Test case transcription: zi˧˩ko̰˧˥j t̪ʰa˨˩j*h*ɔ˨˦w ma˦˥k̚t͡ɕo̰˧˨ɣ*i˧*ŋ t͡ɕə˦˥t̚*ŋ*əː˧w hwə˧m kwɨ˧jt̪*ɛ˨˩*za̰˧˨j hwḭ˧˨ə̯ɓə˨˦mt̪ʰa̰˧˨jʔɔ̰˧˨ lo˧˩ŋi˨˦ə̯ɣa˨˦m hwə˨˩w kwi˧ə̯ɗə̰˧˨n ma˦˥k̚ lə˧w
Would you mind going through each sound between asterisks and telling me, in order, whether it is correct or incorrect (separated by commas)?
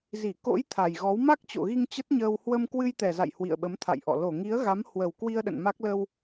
incorrect, correct, incorrect, correct